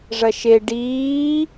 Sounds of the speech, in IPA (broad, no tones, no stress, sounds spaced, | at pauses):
ʐ ɐ ʃ e ɖ iː